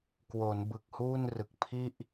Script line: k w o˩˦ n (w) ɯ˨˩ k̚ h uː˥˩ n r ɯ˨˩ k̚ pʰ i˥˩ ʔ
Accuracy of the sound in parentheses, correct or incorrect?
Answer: incorrect